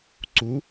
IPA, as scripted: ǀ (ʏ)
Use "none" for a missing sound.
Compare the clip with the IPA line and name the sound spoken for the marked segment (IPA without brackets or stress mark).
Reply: u